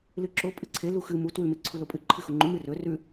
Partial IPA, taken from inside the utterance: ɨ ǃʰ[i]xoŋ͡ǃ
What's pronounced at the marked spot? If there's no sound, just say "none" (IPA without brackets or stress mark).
ɨ